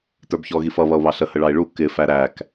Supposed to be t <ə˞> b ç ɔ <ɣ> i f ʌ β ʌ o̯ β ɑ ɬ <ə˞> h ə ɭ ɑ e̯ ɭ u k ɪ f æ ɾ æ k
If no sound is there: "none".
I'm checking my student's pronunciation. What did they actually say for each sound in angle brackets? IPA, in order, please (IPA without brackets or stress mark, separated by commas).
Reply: ə˞, ɣ, ə